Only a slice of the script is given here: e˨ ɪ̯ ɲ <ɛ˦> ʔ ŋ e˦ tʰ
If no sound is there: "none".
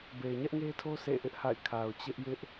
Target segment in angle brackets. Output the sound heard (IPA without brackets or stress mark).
ɛ˦